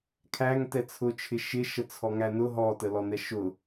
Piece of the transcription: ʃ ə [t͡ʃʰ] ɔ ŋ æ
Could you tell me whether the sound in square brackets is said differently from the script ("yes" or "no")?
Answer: yes